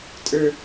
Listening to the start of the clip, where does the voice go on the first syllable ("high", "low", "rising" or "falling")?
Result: high